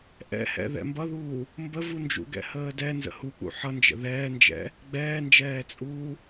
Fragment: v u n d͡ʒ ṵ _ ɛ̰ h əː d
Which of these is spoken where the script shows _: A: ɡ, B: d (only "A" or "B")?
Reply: A